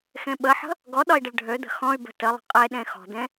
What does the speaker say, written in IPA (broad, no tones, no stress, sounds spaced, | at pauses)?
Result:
x ẽ ɓ ə ħ ə̤ | ɡ ɔ ɗ ɒ i̯ ɖ ə ɭ ɖʱ ø d̪ ə̤ x ɔ̃ y̯ b ə̤ t ə lˠ ə̤ qʼ e ɗ ẽ x ɔ̤ d̪ ẽ